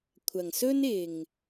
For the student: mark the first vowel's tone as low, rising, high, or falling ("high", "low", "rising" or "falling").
low